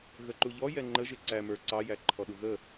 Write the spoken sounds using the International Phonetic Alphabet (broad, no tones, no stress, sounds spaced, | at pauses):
ɣ ə ǃ u ʎ ɔ j ɛ ŋ͡ǃ ə ʒ ɪ ǀ æ m ə˞ ǀ ɑ j æ ǃʰ ɔ ɗ u ɣ ə